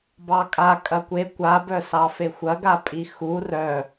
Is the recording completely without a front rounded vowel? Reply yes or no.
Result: no